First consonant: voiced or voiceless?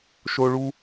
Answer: voiceless